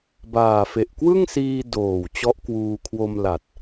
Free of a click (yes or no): yes